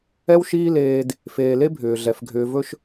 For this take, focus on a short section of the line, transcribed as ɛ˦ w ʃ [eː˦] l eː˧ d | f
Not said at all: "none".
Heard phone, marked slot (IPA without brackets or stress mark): iː˦